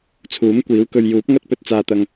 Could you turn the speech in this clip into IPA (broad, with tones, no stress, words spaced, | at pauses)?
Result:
t͡sʰuː˨˥mkʷiː˨˥wkɵ˧ɥ juː˨˥p̚ŋɐ˥t̚pɵ˧t̚ t͡saː˨t̪ɐ˨ŋ